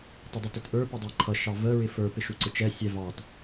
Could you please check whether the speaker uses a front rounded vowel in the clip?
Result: no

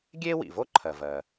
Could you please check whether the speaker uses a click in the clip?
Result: yes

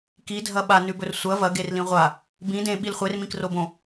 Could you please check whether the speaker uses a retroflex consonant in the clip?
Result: no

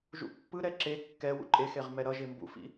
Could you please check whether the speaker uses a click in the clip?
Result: yes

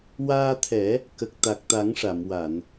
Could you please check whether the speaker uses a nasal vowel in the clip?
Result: no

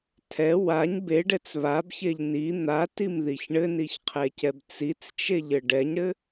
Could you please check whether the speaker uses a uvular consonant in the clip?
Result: yes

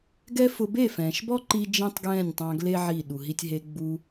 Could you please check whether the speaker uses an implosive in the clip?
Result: yes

